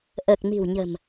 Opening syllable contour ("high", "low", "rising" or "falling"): low